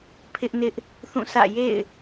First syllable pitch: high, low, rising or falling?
high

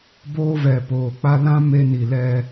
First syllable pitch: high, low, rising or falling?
high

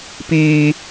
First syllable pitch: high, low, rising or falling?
high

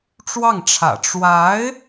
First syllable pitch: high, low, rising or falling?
falling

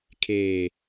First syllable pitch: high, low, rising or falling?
low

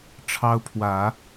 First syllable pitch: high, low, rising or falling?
high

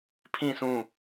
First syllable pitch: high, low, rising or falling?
falling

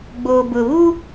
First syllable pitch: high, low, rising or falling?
low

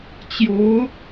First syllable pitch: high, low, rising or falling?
rising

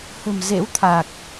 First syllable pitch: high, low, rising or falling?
low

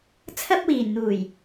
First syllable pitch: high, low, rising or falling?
high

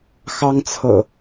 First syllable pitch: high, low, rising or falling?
high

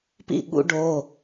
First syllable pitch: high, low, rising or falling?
falling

